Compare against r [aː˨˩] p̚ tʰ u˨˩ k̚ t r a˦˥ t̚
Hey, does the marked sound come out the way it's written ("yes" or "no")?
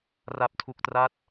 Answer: no